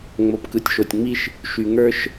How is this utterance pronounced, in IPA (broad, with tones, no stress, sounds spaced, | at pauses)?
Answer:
ŋ͡m o˨ p k ɯ˨ tʲ ʃ o˨ tʲ ŋ͡m i˦ ʃ | ʃ y˨ ŋ ə˞˦ ʃ